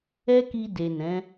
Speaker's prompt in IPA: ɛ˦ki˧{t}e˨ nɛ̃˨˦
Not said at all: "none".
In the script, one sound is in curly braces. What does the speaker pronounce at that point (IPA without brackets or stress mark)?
d